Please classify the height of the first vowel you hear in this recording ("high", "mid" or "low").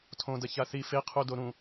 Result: mid